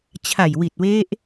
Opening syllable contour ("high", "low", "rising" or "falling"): low